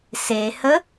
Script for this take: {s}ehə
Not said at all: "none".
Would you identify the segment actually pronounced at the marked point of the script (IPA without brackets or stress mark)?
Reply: s